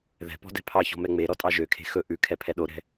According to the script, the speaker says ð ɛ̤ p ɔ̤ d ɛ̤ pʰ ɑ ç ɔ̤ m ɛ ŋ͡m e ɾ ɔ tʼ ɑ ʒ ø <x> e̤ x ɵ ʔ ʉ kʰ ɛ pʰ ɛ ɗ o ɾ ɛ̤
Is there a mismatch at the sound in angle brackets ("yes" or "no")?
yes